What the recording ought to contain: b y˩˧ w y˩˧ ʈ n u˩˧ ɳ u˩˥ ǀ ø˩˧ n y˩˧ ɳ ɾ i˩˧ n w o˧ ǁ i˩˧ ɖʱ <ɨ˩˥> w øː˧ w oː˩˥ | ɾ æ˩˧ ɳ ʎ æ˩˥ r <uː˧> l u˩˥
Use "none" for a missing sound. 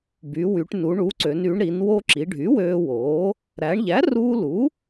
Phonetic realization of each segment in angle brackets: y˩˥, uː˧

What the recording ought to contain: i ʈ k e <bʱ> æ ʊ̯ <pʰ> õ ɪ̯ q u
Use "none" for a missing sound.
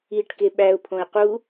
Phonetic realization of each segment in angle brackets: ɓ, pʰ

